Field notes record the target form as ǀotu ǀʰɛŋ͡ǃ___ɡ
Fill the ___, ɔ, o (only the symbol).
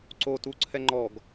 ɔ